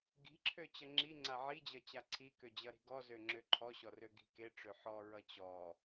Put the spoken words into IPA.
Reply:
ɡ i̤ ǁʰ ø t͡ɕ ʌ ŋ͡ǁ i ŋ͡ǀ a ʕ i d͡ʑ ʌ t͡ɕ a ǀʰ i k ø d͡ʑ ʌ ɾ i̤ ɡ ɔ z ø ŋ͡ǁ ø ǃʰ ɔ ɕ ɔ r ø ɡ i̤ k e ʈ͡ʂ ø ħ ɔ ɹ ʌ t͡ɕ ɔ

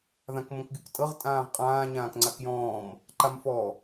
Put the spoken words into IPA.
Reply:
ð ã k m õ k ɡʲ o k tʼ ɤ ʁ tʼ ãː ʁ qʼ ãː ɲ ãː k ŋ͡ǀ a k j ɔ̃ː m | ǃ a m f ɔ

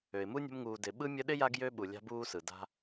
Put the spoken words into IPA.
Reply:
ø˩ ɪ̯ m u˥ nʲ ə̤˦ m ŋ uː˨ d ɪ˨ ɓ ɯ˥ mʲ ə˦ ɗ ɪ˥ j a˦ ɡ j ø˥ ɓ u˨ lʲ a̤˦ b uː˦ s ɯ˩ d a̤˦

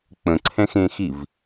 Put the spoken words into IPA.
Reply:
k͡p ə̃ ǀʰ ɛ̃ x ẽ x i v

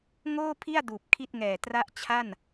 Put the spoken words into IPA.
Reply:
ŋ oː˥˩ pʰ i˥˩ a̯ d uː˨˩ p̚ kʰ i˥˩ t̚ ŋ ɛː˨˩ t r a˦˥ ʔ t͡ɕʰ a˥˩ n

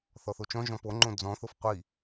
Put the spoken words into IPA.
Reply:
θ ɔ θ o t͡ʃ ɔ̃ ʒ ɔ̃ p o ŋ͡ǃ õ d͡z ɔ̃ θ o f qʷ i

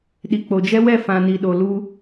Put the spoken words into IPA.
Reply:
ɗ i˨ k͡p o˨ d͡ʒ ɛ˦ w ɛ˦˨ f ã˨ n i˨ ɗ o˨ l u˦

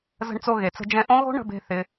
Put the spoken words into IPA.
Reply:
z ə̤˧ ɳ t͡s o˧ ɣ e˨ t͡s ə̤˧ d͡ʒ ɛ̃˧ ʔ õ˦ ɣ o̤˦ ɳ ə̤˧ b e̤˧ θ ɪ˦

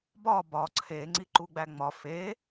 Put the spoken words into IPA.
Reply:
b ɒ b ɒ ǀʰ e ŋ͡ǀ i ǃ u ɡ͡b æ ŋ͡m ɒ f e

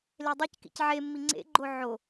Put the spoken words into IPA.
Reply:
l e dˤ ɤ c k ḭ c ʕ e mː i ŋ͡ǀ ḛ ɡ͡ǃ o ʕ o

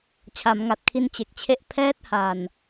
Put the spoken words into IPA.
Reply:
t͡ɕʰ a˩˦ m ŋ a˨˩ t̚ kʰ i˧ n t͡ɕ e˨˩ k̚ t͡ɕʰ e˥˩ ʔ pʰ ɛː˦˥ t̚ h a˨˩ n

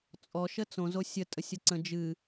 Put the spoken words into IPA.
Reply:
t͡sʼ ɔ ʃ ə t͡s õ z o sʲ ə tʼ ə sʲ ʌ ǀ ə̃ d͡ʒ ɨ

